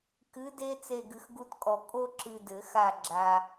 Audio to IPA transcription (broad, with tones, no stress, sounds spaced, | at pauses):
k ɨ˨˥ d e˦ t͡s e˦˨ ɡ ɨ˨ x ɡ u˦ t kʼ ɔ˨ kʼ o˦ ǁ ɨ˨ d ɘ˨˩˦ x a˦˨ ɡ͡ǁ a˨